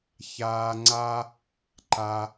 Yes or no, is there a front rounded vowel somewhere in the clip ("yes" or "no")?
no